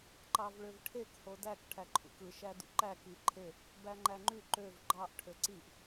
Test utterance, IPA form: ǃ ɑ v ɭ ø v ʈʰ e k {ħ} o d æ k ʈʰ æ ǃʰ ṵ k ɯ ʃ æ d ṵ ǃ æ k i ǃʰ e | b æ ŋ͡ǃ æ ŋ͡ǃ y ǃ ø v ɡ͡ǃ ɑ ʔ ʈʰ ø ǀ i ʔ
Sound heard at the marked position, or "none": h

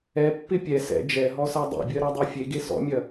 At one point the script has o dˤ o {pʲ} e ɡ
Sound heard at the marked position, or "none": fʲ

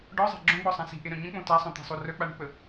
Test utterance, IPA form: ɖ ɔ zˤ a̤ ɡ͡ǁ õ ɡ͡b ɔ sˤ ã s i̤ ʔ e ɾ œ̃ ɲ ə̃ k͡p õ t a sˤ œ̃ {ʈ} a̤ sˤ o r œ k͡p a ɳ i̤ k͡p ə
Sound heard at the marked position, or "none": t̪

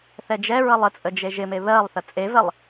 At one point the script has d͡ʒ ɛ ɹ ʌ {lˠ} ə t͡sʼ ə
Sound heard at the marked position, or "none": lˠ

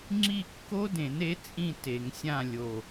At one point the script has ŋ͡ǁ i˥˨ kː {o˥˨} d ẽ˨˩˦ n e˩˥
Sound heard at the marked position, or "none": o˦˥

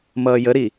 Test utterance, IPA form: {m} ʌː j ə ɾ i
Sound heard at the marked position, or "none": m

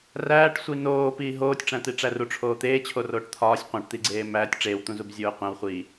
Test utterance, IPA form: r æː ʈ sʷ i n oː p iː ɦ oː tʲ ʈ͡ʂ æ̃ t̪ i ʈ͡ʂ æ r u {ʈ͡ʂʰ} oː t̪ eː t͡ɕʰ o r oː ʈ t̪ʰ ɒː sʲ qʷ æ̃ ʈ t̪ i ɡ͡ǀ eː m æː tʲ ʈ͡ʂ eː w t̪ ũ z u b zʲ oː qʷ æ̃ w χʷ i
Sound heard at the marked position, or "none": ʈ͡ʂʰ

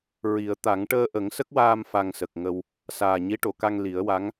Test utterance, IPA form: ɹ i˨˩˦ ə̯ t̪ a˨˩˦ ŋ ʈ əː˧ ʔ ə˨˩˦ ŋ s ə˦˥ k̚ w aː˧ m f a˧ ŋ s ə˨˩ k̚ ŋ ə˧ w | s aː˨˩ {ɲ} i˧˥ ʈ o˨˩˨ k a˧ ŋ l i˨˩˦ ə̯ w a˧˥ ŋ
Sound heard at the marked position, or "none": ɲ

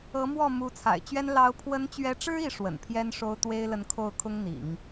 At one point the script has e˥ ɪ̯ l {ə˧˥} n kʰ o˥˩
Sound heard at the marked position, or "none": ə˧˥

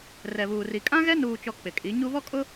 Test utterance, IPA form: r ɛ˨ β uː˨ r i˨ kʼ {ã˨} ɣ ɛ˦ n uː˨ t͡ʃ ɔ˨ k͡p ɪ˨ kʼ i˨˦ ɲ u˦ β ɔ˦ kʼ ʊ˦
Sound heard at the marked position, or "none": ã˦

